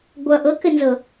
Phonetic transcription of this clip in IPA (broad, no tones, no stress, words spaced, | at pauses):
ɡʷʌ ʔɤkɘnzɤ